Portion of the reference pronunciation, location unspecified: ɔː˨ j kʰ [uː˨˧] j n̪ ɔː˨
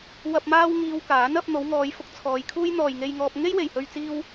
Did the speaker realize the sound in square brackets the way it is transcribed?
no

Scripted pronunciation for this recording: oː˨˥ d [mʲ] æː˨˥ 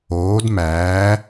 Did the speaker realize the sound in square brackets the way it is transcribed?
no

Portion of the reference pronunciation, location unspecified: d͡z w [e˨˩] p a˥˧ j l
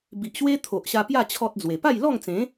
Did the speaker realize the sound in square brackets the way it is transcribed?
yes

